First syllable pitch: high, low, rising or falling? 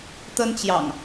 high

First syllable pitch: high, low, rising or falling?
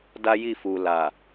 high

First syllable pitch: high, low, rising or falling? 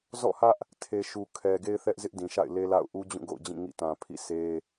falling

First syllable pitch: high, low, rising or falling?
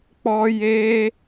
high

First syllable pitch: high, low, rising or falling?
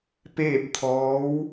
falling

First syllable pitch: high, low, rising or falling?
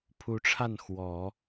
rising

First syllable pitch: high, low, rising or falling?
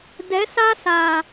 rising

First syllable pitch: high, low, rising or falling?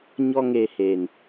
high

